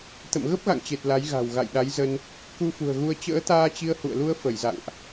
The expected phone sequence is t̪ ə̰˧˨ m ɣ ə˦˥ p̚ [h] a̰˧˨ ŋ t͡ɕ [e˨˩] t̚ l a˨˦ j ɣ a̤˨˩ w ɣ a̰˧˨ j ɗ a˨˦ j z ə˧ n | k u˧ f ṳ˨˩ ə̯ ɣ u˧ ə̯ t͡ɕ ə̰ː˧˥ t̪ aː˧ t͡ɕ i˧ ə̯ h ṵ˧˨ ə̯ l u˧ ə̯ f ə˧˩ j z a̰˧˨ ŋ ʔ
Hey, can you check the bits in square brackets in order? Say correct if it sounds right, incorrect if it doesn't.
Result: incorrect, correct

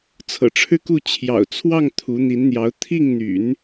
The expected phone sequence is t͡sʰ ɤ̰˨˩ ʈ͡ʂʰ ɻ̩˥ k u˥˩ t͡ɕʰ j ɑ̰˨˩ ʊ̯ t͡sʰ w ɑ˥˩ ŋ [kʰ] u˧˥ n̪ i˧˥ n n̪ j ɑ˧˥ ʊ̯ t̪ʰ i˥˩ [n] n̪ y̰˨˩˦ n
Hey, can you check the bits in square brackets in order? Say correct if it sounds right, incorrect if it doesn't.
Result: incorrect, incorrect

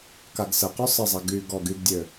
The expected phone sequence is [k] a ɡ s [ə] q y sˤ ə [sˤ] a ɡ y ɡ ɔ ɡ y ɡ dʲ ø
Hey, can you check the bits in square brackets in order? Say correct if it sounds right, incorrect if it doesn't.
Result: correct, correct, incorrect

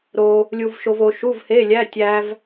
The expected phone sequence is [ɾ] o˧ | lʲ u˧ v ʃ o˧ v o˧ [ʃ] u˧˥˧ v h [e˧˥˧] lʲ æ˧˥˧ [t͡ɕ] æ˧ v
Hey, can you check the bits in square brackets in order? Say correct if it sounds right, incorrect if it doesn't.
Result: correct, correct, correct, incorrect

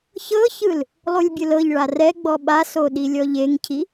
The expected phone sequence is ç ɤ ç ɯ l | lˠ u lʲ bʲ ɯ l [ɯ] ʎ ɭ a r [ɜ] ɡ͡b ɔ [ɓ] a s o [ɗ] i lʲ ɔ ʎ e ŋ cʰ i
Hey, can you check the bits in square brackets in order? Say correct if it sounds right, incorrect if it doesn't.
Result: incorrect, incorrect, correct, correct

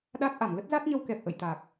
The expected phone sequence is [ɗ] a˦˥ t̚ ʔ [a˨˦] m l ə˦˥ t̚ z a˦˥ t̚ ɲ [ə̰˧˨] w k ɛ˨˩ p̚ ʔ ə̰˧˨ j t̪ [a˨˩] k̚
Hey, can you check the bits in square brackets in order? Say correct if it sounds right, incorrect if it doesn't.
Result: correct, incorrect, incorrect, correct

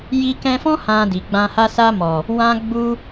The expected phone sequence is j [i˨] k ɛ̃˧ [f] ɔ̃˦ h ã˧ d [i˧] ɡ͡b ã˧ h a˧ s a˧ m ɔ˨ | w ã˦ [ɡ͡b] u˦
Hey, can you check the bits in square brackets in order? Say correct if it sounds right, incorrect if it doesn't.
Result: incorrect, correct, incorrect, correct

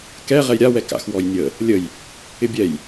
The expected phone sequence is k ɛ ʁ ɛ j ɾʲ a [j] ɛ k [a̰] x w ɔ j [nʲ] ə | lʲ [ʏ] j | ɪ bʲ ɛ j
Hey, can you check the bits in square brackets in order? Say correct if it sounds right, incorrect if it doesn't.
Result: incorrect, correct, correct, incorrect

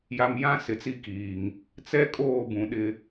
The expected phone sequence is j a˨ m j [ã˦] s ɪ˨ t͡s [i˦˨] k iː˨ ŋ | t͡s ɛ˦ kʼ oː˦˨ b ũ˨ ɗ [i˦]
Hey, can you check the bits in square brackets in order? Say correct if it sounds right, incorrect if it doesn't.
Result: correct, correct, incorrect

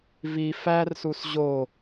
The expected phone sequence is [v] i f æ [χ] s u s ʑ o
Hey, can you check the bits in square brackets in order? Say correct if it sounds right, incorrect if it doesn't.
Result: correct, incorrect

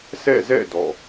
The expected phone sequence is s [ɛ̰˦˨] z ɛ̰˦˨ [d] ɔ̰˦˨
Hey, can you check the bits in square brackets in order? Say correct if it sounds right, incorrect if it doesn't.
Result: correct, correct

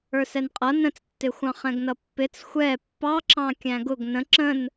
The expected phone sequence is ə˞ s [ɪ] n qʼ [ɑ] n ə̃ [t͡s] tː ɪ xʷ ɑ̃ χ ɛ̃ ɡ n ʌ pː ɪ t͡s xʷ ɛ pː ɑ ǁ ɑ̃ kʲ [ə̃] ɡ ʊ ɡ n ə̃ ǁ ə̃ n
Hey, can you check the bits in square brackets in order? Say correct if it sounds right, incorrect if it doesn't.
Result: incorrect, incorrect, correct, incorrect

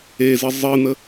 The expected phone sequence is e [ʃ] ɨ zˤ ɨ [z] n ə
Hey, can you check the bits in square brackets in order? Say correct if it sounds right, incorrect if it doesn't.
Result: incorrect, incorrect

